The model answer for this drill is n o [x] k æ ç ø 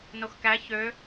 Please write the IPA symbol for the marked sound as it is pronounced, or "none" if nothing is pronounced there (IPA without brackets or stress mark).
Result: x